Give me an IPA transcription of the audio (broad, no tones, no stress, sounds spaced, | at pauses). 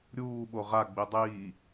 ɾʲ uː ɓ o ʁ a ɡ͡b i dˤ iː